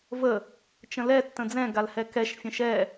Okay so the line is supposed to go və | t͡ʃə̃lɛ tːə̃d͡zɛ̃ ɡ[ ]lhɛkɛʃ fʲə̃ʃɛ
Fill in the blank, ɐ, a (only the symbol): a